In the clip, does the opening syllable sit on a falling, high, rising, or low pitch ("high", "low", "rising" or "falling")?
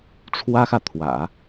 high